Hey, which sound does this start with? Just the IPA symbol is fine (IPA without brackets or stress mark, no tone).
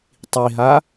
tˤ